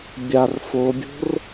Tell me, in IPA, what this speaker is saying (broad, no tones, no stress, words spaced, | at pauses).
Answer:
bʲar fobʲo̤r